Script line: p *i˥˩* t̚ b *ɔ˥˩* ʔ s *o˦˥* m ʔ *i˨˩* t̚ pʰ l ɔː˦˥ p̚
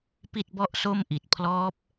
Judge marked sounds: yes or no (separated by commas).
yes, yes, no, yes